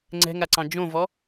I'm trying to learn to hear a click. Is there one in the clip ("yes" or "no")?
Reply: yes